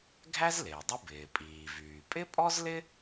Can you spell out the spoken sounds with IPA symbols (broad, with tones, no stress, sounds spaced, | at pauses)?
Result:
ɡʱ æ˥ z l ɪː˩ dˤ ə˥ b ɪː˩ pʼ iː˩ v yː˩ pʼ ɪ˥ pʼ ɔ˥ z l ɪ˥